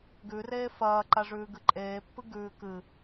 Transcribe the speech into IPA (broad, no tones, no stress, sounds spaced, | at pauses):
ɡ ʉ r eː f ɐː ǃ a ʐ ʉː ɡ ɨ ǃʼ eː pː ɨ ɡ ʉː k ɨ